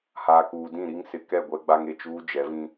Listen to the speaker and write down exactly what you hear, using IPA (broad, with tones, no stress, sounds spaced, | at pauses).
h aː˨ k uː˨ d ĩ˦˨ ɾ i˦ ŋ s ɪ˨ k ɛ˦˨ ɡʷ ɛ˦ ɡ͡b a˦ ŋ e˨ t͡ʃ uː˦ d͡ʒ ɛ˨˦ v ĩ˦